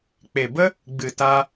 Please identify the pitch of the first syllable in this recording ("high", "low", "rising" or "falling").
low